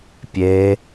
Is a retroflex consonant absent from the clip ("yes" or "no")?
yes